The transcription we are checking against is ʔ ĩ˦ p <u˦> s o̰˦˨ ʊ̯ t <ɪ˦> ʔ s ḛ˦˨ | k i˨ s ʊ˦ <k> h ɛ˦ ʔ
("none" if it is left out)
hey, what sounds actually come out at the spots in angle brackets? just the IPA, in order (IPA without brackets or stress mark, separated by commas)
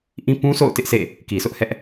ũ˦, ɪ˦, ʔ